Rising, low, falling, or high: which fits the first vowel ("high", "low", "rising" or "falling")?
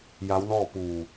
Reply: rising